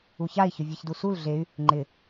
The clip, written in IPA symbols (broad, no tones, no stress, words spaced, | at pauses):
uçai̯ çʊvʲeçdusul ɮey̯ | ŋ͡ǃɪ